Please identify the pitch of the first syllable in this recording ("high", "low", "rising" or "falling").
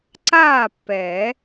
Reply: falling